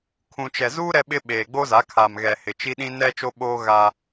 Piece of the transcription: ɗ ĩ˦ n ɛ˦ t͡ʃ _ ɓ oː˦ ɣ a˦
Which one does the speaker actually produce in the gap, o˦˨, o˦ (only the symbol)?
o˦